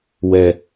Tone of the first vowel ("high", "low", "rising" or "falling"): low